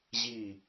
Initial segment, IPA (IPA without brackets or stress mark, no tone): ʑ